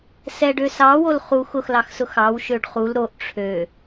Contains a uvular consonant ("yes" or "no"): yes